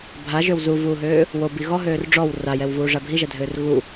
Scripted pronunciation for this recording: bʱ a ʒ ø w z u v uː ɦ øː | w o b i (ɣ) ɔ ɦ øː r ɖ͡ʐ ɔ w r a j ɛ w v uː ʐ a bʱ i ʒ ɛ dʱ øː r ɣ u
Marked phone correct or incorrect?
correct